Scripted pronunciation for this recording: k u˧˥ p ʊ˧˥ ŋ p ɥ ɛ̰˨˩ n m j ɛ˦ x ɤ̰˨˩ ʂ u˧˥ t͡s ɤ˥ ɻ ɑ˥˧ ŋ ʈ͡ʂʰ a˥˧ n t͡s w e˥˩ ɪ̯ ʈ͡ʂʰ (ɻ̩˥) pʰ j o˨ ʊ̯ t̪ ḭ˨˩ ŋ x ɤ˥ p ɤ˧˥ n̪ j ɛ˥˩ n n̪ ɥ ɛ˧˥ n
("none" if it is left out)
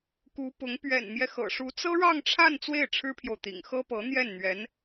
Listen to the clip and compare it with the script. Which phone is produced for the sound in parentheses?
ɻ̩˥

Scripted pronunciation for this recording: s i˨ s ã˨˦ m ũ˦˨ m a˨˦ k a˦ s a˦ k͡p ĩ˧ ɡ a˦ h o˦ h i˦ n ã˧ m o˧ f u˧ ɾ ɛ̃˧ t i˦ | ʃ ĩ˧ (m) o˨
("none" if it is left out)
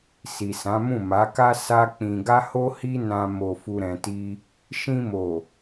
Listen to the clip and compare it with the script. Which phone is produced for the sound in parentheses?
m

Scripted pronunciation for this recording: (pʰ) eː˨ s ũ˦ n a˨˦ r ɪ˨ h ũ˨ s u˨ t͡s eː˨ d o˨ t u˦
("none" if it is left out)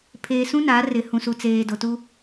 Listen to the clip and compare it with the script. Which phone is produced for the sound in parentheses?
pʰ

